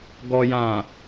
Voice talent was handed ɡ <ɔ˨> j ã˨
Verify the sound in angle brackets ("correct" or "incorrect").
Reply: correct